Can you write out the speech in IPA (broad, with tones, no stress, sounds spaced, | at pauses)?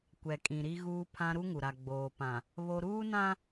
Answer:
kʷ ɛ˨ kʼ ĩ˨ ɾ i˦ ɣ uː˦ pʰ ã˦ ɾ u˦ ŋ u˨ ɾ a˨ ɡ͡b oː˨ p ã˨ | β o˦ ɾ uː˦ n ã˦